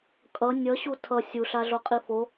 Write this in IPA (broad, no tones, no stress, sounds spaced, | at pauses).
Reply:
kʼ ʌ nʲ ʌ ɕ u tʰ ʌ sʲ u ɬ a ɮ o qʼ i f o